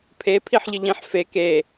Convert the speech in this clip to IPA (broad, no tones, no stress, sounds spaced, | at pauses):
pʰ e pʰ i ħ ʎ ɘ ʎ ĩ ħ f e k e